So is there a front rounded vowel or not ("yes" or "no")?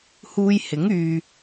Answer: yes